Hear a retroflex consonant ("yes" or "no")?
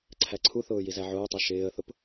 no